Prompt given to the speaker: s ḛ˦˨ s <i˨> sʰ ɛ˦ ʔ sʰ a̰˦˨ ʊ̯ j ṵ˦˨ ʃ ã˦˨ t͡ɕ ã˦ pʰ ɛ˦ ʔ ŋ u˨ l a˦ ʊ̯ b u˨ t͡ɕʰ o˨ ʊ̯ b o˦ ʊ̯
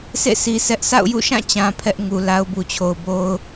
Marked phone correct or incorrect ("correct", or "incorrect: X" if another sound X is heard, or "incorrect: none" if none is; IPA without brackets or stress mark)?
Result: correct